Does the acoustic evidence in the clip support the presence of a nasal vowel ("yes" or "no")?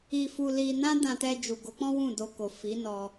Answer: yes